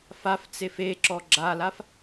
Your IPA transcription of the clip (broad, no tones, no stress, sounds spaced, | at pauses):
f a f t͡s e f e ǁ ɔ ɡ͡ǁ a l a f